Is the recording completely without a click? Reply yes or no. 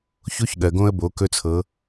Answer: yes